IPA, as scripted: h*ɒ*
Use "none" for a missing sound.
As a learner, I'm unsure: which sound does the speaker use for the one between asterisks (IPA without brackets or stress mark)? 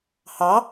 ɑ